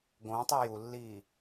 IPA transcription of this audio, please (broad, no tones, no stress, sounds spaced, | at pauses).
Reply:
ɡ õ tˤ u j u lː iː